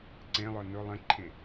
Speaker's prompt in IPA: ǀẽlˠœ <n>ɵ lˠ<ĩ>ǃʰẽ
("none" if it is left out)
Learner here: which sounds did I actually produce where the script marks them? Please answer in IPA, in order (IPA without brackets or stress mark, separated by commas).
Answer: n, ẽ